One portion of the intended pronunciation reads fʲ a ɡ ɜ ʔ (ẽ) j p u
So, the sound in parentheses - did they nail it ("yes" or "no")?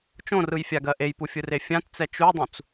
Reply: no